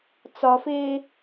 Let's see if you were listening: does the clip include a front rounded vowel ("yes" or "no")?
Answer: no